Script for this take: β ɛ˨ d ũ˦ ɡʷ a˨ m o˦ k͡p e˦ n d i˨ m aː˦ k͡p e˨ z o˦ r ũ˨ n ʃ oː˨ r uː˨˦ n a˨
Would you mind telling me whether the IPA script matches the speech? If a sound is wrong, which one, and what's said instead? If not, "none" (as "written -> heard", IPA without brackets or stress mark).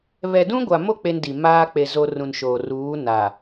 none